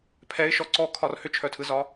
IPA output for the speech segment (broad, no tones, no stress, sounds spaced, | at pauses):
pʰ ɛ ɪ̯ ʃ ɔ ǀ ɔ kʰ ɒ r h ʏ t͡ʃʰ œ tʰ ɯ z ɒ